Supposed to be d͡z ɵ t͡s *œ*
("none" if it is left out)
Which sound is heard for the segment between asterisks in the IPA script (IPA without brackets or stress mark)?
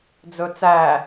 æ